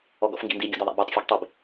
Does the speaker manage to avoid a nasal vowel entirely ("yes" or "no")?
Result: yes